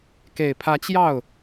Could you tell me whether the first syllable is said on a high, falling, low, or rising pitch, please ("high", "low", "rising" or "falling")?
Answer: low